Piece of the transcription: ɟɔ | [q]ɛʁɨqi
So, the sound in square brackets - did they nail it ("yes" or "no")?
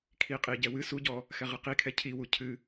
no